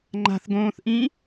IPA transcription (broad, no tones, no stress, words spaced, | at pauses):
ŋ͡ǃa̤θɡõːθʔĩ